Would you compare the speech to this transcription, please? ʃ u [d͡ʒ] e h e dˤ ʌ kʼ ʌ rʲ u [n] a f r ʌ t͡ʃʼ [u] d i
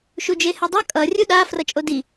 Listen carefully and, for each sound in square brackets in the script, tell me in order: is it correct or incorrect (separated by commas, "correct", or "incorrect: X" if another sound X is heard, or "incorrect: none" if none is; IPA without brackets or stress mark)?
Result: correct, incorrect: ɗ, incorrect: o